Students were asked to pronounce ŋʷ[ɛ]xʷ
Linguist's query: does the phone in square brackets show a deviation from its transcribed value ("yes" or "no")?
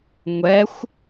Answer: no